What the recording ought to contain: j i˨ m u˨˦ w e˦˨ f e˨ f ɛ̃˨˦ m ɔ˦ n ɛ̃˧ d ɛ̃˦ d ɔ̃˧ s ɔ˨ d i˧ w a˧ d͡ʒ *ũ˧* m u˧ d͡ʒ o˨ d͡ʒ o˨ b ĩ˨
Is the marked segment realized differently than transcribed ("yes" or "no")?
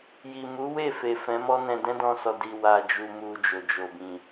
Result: yes